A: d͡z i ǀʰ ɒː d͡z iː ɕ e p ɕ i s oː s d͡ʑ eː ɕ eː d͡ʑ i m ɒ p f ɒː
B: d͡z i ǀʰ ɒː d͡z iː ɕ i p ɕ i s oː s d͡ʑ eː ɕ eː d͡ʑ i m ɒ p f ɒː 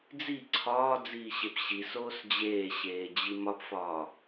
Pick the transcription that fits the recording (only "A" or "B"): A